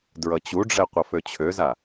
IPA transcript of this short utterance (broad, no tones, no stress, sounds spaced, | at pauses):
d ɹ ʌ t͡ɕ u ɖ͡ʐ ɛ qʷ ʌ f ø t͡ɕʰ ø z a